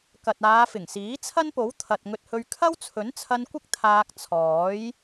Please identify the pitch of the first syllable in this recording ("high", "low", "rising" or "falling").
low